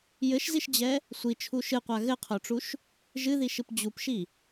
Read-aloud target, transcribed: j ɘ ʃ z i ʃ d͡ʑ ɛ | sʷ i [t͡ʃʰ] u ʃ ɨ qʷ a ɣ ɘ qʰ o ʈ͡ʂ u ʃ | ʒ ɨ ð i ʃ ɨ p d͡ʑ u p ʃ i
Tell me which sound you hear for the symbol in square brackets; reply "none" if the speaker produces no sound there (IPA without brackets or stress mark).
t͡ʃʰ